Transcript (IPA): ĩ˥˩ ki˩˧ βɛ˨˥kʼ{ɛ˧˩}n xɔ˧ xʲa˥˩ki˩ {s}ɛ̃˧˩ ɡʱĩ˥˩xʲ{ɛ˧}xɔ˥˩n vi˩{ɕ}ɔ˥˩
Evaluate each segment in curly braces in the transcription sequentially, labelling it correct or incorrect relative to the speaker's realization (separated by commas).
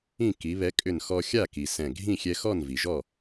incorrect, correct, correct, incorrect